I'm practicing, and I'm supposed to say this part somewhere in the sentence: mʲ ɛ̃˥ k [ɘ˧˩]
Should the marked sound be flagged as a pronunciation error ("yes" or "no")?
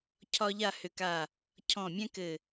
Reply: no